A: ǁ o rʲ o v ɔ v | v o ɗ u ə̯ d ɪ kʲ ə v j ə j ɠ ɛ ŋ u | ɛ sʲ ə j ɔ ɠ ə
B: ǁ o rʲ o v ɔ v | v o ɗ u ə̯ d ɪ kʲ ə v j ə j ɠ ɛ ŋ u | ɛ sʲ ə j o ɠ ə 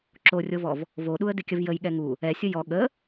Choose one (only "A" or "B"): A